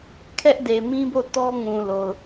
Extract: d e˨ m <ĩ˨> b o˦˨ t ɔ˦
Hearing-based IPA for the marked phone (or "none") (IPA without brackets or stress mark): ĩ˦